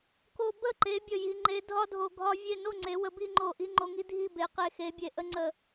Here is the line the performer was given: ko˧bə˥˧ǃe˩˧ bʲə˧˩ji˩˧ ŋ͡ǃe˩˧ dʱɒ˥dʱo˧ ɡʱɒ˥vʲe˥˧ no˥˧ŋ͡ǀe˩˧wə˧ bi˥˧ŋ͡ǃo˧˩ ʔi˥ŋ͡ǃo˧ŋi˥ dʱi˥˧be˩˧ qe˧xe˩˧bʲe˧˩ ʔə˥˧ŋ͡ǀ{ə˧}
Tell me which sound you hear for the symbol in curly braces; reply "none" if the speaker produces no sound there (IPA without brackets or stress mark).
ə˧˩